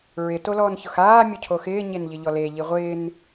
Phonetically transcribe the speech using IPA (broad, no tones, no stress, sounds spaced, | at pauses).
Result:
ɹ ɪ t o l ɔː n ç ʊ x aː mʲ ʊ cʰ o x ɪː ɲ e n ʎ ɪ ʎ ɔ l e ʎ i ʁʷ ɪː n